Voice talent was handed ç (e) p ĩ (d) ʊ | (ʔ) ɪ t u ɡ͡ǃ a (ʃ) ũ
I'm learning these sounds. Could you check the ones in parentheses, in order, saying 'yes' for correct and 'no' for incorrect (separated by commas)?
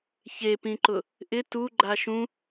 yes, no, yes, yes